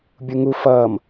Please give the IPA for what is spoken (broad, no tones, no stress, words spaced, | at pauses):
bʲuŋu fʌːm